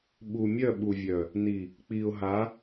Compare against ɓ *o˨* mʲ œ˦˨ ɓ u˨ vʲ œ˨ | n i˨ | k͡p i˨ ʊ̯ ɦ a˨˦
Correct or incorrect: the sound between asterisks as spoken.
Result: incorrect: u˨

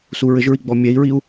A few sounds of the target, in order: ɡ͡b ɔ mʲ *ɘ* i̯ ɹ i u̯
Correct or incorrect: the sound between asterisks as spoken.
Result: incorrect: ɛ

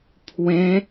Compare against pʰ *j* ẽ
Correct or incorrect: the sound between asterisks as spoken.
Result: incorrect: w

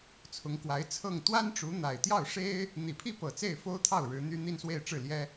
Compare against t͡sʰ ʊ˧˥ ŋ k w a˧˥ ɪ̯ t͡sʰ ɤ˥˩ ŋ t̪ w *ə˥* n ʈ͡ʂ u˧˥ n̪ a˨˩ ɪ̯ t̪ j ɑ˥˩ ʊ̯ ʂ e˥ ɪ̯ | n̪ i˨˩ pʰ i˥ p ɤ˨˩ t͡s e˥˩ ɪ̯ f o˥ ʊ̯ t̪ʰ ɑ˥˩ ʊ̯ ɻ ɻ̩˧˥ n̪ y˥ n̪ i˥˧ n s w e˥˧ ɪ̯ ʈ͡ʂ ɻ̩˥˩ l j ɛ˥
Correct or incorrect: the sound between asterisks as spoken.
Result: incorrect: a˥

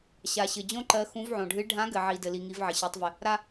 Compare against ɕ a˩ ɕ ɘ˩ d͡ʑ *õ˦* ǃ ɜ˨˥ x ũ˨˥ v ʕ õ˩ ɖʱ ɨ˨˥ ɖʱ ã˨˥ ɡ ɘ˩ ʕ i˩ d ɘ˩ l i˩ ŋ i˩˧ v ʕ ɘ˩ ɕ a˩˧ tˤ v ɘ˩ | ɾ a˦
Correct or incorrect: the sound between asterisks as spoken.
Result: correct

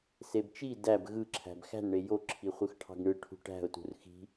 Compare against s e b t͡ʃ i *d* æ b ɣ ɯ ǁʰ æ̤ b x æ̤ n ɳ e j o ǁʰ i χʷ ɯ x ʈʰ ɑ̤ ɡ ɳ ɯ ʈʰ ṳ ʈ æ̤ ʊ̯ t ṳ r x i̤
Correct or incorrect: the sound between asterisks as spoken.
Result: correct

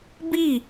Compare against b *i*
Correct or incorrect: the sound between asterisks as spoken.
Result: correct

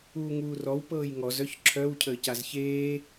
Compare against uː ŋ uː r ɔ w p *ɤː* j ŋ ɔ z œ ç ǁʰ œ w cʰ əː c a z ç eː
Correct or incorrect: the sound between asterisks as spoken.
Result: correct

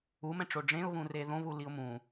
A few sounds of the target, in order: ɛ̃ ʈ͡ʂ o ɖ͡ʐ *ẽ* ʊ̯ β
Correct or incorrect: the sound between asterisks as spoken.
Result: correct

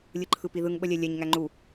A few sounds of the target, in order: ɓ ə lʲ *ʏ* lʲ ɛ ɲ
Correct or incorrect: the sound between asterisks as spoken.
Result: incorrect: ɛ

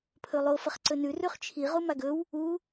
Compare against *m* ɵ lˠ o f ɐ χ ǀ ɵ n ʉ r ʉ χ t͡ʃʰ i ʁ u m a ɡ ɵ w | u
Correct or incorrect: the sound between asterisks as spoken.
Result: incorrect: pʰ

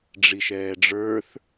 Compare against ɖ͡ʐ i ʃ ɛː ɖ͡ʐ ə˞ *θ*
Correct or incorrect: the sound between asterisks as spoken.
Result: correct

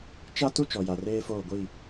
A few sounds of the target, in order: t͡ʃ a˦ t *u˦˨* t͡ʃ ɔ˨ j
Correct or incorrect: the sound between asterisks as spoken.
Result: incorrect: u˦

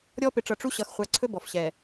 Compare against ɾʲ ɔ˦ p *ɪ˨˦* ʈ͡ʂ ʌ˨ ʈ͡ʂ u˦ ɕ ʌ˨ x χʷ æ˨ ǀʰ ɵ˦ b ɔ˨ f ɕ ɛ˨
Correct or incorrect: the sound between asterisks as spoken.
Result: correct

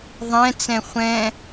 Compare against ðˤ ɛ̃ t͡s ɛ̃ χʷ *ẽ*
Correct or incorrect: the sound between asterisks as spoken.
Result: incorrect: ɛ̃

